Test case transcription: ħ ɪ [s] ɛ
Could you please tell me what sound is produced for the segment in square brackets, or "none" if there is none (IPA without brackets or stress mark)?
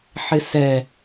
s